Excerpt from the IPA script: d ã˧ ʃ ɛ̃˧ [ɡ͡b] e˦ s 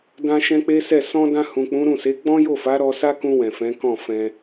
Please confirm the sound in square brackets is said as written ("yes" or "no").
no